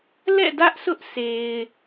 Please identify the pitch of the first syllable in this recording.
falling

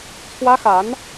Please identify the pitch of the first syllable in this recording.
high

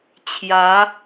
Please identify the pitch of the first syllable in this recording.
rising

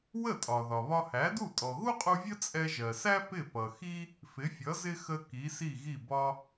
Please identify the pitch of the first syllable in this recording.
falling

